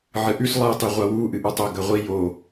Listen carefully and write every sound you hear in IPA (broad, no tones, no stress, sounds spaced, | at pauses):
ʕ ɨ ʔ ʉ s lˠ ɨ tˤ i ʁʷ a w u ʔ ɨ ʔ u tˤ o ɡ ɐ ʁʷ i j o